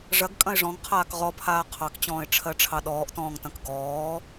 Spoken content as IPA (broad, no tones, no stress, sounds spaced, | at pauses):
ʐ ɐ ɡ kʼ ɐ̃ ɪ̯ ʐ ɔ̃ ŋ qʰ aː k ʁ ɔ pʰ aː qʰ ɑ k t͡ɕ ɔ̃ː ɪ̯ ʈ͡ʂʰ ɜ ʈ͡ʂʰ ɑ ɗ ɔː ʔ t ɔ̃ː ŋ t ɐ̃ k ɡ ɔː